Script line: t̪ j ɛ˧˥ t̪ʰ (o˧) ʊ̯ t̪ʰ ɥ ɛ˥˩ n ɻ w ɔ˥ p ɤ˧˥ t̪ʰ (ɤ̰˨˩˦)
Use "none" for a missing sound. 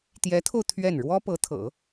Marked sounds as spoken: o˧, ɤ̰˨˩˦

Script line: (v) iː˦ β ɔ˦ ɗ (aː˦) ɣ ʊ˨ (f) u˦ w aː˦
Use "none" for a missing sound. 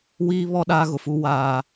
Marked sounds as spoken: w, aː˦, f

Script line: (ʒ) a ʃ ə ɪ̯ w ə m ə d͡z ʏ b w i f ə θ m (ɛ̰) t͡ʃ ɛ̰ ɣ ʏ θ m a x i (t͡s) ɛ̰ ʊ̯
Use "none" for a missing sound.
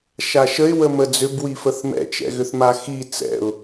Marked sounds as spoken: ʃ, ɛ̰, t͡s

